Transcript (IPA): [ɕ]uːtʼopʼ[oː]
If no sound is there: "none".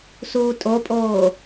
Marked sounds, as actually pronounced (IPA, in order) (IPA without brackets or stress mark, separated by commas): s, oː